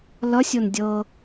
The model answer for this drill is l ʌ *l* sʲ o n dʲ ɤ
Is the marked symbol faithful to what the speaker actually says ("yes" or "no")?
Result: no